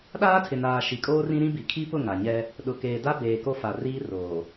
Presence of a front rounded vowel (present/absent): absent